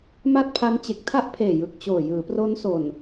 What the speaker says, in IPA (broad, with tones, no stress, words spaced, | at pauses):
ma˥˩t̚pʰa˦˥n t͡ɕe˨˩k̚tʰa˥˩ʔpʰeː˨˩ jɯ˨˩k̚t͡ɕoː˨˩ jɯː˩˦pro˦˥nso˨˩n